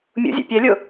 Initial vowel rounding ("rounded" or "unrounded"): rounded